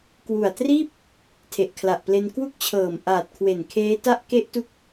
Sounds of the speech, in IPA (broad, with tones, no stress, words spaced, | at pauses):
kwu˨˩a̯triː˥˩p̚ | tʰe˨˩ʔkʰla˨˩ʔple˧n kwu˦˥k̚t͡ɕʰɤː˨˩mʔaː˨˩t̚kʰwe˨˩n kʰeː˦˥ta˥˩ʔ ke˦˥ʔtu˦˥k̚